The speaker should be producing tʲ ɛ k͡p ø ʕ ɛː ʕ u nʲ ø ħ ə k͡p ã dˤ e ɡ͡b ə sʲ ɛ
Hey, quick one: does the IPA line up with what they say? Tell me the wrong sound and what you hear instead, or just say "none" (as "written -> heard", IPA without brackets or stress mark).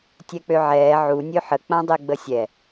none